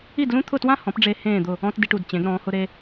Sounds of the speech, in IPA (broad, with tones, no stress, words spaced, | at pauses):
i˥˩dlũ˥t̪ʰʊ˥˩twã˥ hɔ̃˩˥pɖ͡ʐe˧ hẽː˥˩d̪ʊ˥˩ | ɔ̃˥tdi˧ʈ u˩dt͡ɕẽ˩˥ɡ ɾɔ̃ː˩˥hʊ˥ɾe˥